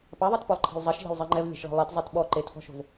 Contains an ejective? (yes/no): no